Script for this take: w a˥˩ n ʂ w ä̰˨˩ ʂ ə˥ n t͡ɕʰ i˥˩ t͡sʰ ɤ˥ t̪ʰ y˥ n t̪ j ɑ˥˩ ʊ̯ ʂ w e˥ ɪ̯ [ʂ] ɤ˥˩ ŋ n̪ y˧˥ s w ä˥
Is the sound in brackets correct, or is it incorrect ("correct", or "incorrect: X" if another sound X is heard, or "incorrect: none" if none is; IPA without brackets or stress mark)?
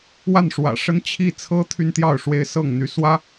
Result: incorrect: s